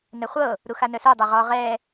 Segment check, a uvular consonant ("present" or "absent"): present